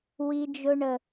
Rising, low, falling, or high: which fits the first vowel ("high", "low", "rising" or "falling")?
high